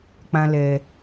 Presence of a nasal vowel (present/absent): present